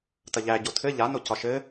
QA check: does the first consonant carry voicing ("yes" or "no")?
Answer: no